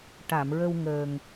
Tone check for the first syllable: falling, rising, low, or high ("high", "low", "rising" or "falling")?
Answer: low